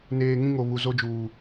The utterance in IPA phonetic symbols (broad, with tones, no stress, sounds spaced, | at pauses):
n eː˨ ŋ ĩ˦ ŋ o˨ β u˨ z o˦ d͡ʒ uː˨